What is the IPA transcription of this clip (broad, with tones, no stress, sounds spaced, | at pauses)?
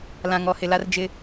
l ã˨ ŋ ɔ˨ h ɪ˨ l a˦ r d͡ʒ ɪ˦